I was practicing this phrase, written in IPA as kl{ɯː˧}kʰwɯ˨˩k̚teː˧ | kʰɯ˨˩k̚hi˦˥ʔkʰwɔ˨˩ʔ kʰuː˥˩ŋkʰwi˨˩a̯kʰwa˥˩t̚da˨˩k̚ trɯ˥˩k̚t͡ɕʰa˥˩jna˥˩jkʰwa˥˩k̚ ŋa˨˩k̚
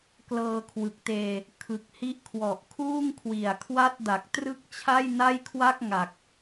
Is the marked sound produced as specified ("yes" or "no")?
no